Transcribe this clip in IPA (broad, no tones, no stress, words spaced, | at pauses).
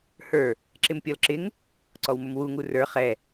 hə˞ | ǁɪmpʲɔlǁɪŋ | ǀɔwmʊmwu ŋurə˞ χɛ